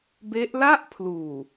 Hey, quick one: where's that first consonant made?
lips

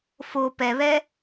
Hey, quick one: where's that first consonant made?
lips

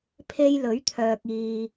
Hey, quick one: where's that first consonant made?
lips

